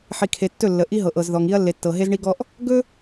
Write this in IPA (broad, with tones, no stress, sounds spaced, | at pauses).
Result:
ħ i˨ kʰ e˨ tː ɵ˦˨ lː ə˨ ʔ i˦ ɦ ɤ˨ ʔ ɤ˨ z ð ɔ˨ ŋ i˦ ɐ̯ lː e˨ tː ɤ˨ ɦ e˦ z ɳ i˦ ɡ ɔ˦ ʔ | ɡ ɵ˦